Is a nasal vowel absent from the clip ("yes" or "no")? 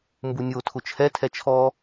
yes